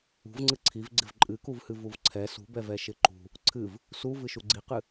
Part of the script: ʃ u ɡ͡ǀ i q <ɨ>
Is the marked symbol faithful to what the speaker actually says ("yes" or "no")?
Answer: yes